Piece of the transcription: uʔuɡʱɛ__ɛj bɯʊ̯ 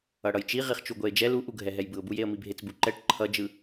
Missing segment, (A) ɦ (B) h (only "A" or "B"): A